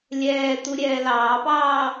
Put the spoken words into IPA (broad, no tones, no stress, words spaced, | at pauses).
lʲɛːt̪u ɾʲɛːlɑːpɑː